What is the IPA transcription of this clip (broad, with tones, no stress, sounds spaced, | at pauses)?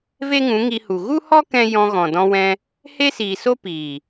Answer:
v e˦ ŋ ũ˨˦ ŋ i˧ h u˨ ɣ u˦ h ɔ˦ k ɛ̃˦ j ɔ̃˧ ɣ ɔ̃˨ d ɔ̃˧ w ɛ̃˧ | h e˦ s iː˨ s o˦ p iː˨